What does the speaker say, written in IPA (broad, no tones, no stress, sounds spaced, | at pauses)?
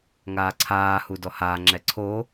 ŋ aː ǀʰ aː h u d ɔ h aː ŋ͡ǁ ɛ ǀʰ o